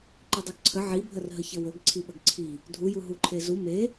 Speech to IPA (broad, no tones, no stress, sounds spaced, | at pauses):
ǃ i dˤ u ɡ ǀʰ ə ʕ i bʱ ə r ɦ ə ç ə w ɵ ɡ ǀʰ i ɓ ɵ ɡ ǀʰ i | dʱ u j u ɦ u ǃʰ e z u m e